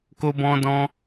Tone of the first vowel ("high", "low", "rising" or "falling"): high